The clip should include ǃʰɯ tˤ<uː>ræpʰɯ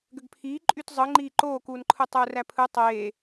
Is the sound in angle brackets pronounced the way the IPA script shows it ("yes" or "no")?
yes